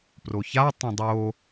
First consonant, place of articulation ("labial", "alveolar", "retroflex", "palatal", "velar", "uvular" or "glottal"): labial